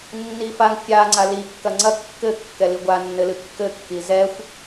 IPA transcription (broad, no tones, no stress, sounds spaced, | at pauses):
nː i f a ŋ fʲ a ŋ͡ǀ a l i kː ɐ ŋ͡ǀ ɐ kː ɘ kː ɛ l i ɡʷ a nː ɘ l ɨ kː ɘ kː i z ɛ xʷ